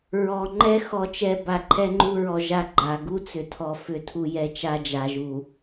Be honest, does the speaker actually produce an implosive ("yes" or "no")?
no